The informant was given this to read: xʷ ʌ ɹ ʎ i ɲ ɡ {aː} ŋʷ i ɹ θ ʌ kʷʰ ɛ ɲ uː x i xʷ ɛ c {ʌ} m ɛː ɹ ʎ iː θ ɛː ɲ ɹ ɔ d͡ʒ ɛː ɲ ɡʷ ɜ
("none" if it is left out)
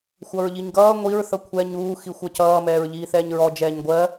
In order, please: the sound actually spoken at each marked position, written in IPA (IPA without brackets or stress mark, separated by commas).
ʌː, ʌː